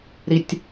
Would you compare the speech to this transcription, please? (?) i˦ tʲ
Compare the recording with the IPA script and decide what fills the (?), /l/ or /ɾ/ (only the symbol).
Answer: ɾ